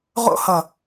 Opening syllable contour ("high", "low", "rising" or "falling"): high